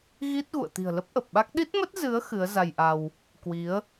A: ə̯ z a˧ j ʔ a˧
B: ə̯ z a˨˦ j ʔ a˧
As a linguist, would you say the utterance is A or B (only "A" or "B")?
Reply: A